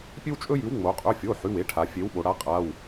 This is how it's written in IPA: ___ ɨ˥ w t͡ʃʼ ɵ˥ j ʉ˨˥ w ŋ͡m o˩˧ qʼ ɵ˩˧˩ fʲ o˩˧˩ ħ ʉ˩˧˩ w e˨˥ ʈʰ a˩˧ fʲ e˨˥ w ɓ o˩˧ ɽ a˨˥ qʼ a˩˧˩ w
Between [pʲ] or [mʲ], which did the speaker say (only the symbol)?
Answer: pʲ